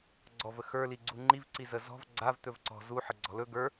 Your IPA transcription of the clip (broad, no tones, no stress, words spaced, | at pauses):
ɡ͡ǀɔvə xə˞li ɡ͡ǀuŋ͡ǃivǀizə zɔ̤v ɡ͡ǀav t̪ɵvǀɔ̤ zu ħəɡ͡ǀɔ̤lɵ ɡə˞